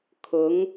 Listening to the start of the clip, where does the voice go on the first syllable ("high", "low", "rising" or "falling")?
rising